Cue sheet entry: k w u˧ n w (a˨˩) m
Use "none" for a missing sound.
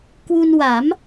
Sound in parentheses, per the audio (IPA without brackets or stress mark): a˩˦